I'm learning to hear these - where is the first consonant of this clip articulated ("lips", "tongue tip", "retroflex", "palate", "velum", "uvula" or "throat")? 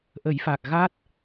throat